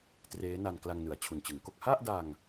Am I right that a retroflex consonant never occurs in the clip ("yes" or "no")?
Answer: yes